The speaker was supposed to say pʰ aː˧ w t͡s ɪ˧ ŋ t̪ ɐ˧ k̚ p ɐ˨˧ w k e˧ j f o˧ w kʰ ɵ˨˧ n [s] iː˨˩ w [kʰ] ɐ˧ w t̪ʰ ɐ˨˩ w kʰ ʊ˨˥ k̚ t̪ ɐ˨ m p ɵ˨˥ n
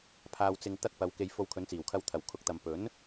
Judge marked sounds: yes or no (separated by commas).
no, yes